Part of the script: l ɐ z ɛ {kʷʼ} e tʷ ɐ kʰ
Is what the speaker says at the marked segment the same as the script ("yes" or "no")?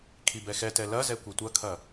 no